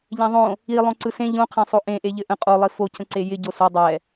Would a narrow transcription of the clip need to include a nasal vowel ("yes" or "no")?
yes